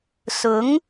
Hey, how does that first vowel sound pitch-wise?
rising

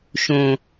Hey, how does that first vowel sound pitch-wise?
low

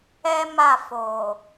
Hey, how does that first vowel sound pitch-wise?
high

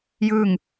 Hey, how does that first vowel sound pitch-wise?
falling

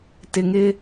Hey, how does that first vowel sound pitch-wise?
low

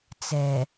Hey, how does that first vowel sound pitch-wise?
low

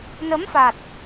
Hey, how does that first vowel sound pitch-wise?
rising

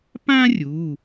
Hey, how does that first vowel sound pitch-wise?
high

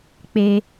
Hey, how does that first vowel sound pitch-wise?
high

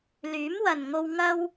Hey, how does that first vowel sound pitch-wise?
rising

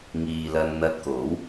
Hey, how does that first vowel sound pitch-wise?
low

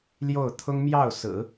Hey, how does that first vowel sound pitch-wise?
falling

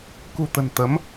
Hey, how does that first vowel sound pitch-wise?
low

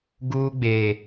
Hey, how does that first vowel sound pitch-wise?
high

